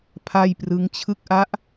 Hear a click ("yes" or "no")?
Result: no